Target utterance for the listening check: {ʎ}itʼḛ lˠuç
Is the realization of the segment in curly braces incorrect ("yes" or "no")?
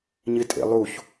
yes